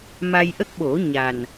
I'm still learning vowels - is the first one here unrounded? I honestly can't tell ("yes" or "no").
yes